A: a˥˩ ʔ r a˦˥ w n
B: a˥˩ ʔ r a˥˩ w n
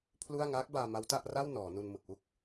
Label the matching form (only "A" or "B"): B